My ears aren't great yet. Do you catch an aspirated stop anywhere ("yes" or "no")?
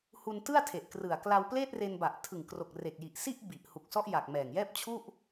yes